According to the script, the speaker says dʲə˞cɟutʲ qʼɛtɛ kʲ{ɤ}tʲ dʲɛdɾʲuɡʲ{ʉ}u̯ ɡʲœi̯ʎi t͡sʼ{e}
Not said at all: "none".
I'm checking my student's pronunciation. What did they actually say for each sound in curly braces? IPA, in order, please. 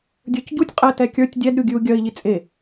ə˞, ʉ, e

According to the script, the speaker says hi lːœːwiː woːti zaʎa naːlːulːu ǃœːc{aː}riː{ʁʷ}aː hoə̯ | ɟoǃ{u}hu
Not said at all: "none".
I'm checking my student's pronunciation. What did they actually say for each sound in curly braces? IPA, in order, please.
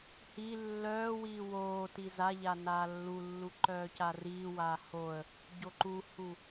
a, w, u

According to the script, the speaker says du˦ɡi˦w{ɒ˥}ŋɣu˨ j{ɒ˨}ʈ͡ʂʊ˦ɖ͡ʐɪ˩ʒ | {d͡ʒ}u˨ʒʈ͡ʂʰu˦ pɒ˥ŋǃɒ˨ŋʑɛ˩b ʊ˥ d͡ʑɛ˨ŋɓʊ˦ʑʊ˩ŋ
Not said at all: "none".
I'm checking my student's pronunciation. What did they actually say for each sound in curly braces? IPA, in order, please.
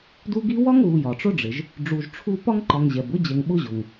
ɒ˥, ɒ˩, ɖ͡ʐ

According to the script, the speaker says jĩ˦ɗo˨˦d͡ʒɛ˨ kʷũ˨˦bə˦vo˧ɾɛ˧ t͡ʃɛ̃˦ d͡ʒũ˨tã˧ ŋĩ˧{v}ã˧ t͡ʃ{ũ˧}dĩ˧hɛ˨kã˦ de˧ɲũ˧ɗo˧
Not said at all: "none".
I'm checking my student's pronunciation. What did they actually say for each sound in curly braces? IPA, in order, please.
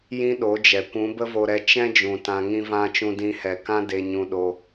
v, ũ˧

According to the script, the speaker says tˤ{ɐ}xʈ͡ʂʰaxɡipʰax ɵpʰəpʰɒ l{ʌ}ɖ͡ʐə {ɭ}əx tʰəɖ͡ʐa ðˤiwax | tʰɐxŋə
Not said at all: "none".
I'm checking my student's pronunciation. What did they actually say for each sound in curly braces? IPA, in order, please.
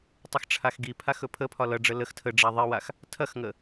ɐ, ʌ, l

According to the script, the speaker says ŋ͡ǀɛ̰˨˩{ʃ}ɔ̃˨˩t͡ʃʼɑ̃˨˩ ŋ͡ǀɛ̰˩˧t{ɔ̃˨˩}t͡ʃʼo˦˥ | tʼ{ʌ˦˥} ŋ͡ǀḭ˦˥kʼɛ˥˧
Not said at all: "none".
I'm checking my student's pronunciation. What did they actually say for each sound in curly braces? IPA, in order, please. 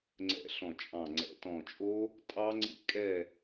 ɬ, ɔ̃˨˩, ɑ˦˥

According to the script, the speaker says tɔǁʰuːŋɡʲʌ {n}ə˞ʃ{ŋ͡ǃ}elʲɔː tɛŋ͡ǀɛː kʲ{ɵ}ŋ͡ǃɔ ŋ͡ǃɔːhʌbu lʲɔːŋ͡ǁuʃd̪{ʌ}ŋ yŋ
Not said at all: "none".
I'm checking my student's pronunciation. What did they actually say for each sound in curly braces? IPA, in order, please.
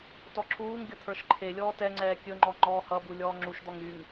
t̪ʰ, ǃʰ, ɵ, ɔ

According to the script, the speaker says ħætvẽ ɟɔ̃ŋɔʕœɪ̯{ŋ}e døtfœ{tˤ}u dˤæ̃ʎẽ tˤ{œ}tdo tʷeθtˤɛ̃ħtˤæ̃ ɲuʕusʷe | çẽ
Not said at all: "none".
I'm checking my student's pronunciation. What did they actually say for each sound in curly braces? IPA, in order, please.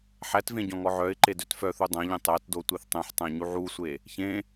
ǃ, θ, æ

